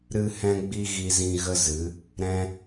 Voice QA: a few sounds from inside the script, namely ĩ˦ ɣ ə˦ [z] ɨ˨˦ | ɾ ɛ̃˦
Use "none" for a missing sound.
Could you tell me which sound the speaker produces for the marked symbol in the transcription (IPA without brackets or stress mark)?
z